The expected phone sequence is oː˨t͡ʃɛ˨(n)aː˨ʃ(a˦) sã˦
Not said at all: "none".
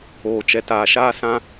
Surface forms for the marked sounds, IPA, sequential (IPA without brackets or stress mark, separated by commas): t, aː˦